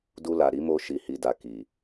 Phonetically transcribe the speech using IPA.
d u˧ l a˨ ɾ i˨˦ m o˧ ʃ i˨ h i˨ d a˨ k i˨

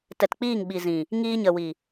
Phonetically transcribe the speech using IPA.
t ɛ˨ t k͡p iː˦˨ ŋ ɓ i˨ z ĩ˨ | ŋ iː˧ ɲ ə˨ w i˨

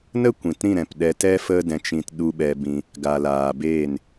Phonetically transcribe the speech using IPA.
n ə˦ kʷ ĩ˨ t ɾ ĩ˦˨ ɾ ɛ̃˨ p ɗ ɛ˧ t ɛ˦ f ə˦ d ɛ̃˧ t͡ʃ ĩ˧ t ɗ u˧ ɓ ɛ˧ b ĩ˧ | ɡ a˨ l aː˨ b eː˦˨ n

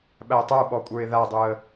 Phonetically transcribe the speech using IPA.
ɓ æ ə̯ tˤ ə˞ ɓ ɔ kʷʼ ə˞ ɪ̯ ð a dˤ u ə̯

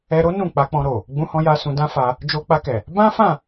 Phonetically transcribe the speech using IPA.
ɛ˧ ɾ o˦ n ũ˦˨ k͡p a˧ k͡p ɔ̃˧ ɾ o˨ | ɡ͡b ũ˧ h ɔ̃˧ j a˧ s ũ˧ d ã˦ f a˧ | d͡ʒ o˧ k͡p a˧ k ɛ˨ | b ã˦ f ã˦˨

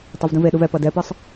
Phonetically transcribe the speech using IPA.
tˤ e v d ũ v e ɗ u v ɛ p ʌ d ɛ p ɯ sˤ

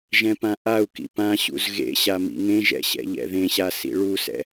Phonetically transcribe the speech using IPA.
ʒ ɛ̃ p ã ʔ a u̯ k ḭ p ã ɕ ṵ z ɣ ḛ ɕ a m ḭ ŋ ẽ ʒ ɛ̰ ɕ ɛ̰ ʎ ɛ̰ ð ẽ ɕ a s ḭ ɭ u s ɛ̰

